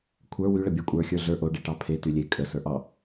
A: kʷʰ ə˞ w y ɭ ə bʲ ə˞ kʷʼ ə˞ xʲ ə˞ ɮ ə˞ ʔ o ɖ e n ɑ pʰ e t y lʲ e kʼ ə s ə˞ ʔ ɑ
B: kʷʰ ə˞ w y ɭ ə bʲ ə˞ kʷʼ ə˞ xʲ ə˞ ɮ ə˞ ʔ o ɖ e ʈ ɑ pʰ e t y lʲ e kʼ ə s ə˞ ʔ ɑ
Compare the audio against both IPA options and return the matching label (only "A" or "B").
B